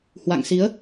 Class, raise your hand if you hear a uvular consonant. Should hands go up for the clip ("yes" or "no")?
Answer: no